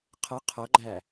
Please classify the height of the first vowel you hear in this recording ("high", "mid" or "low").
mid